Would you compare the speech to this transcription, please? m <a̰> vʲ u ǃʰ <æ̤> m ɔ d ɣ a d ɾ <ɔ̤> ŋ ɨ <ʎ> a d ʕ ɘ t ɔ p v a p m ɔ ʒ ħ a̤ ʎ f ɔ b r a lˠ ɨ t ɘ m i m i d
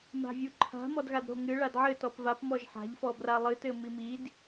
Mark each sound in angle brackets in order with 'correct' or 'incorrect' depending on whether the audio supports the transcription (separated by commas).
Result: incorrect, incorrect, incorrect, incorrect